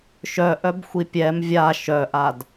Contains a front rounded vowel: yes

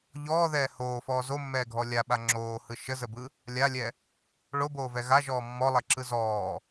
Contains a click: yes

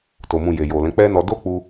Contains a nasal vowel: yes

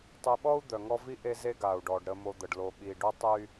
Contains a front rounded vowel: yes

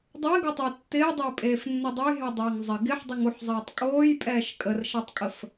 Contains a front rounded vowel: no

